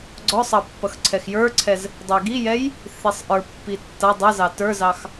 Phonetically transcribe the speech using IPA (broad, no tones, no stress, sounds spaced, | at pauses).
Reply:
ɡ͡ǀ ɔ sˤ ɑ pː ʌ x ǀʰ ɛ x j ə˞ ǀʰ ɛ z | dˤ ʊ ɪ̯ ɡ i j ɛ j | θ i sˤ ʔ ə˞ pː i tː ʌ dˤ ʌ z ɑ t ə˞ z ɑ x